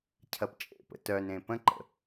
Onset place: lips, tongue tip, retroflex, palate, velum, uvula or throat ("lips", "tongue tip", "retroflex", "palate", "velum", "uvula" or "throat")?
palate